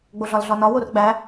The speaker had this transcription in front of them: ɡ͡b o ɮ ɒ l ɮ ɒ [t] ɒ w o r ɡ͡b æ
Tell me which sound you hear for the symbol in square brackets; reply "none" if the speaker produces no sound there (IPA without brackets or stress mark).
n